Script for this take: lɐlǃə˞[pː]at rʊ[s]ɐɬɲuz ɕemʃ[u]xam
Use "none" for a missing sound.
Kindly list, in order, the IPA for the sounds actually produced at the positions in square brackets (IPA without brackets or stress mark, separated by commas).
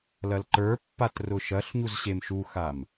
pː, ʃ, u